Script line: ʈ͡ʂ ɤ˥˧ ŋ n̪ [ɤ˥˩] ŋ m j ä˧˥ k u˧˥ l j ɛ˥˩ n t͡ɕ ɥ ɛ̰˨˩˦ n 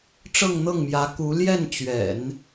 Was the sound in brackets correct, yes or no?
yes